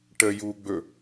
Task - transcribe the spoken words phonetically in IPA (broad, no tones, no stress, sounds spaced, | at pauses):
ʈ ə j uː ɡ͡b ɵ